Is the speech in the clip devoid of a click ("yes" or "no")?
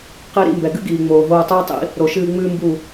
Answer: yes